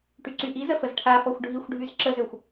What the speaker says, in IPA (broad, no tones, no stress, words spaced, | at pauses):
ʈyǀyʔizə fəzʈʰafɔxʷ ɖʱixʷɖʱyz ǁəzøxʷ